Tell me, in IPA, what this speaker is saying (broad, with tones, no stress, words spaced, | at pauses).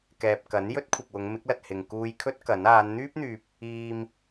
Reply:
kɛː˨p̚kɐ˨˥n jɵ˥t̚kʷʰɪ˨k̚wʊ˨˧ŋ mɪ˨˥k̚lɐ˨t̚hɪ˨ŋ kuː˧jkʰɵ˥t̚ kɐ˨˥n aː˨˧nn̪yː˥p̚n̪yː˨p̚ | iː˧m